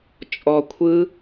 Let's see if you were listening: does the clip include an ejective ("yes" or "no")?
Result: yes